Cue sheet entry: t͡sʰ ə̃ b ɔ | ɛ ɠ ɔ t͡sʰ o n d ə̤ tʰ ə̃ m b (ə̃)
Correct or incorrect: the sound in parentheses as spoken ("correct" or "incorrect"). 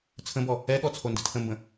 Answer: correct